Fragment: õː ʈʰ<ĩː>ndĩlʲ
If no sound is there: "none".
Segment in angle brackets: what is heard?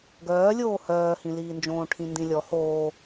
ĩ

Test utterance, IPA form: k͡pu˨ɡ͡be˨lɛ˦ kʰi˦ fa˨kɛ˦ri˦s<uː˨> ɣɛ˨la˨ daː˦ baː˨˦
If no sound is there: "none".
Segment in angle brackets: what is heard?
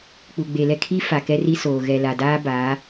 oː˨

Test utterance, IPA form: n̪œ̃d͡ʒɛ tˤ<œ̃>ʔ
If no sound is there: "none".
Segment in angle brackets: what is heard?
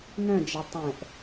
ɛ̃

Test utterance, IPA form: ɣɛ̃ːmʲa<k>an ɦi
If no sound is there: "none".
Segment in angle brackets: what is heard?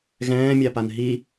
p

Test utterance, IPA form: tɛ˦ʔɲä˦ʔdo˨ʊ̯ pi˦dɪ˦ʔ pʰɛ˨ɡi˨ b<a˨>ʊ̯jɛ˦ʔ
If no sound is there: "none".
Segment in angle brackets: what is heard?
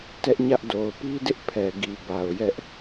a˨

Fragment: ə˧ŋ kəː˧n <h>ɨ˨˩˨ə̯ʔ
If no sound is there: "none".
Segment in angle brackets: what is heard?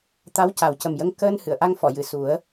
h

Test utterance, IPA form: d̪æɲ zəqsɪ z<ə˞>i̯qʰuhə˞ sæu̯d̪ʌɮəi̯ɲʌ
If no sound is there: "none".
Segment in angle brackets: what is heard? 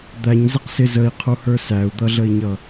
ə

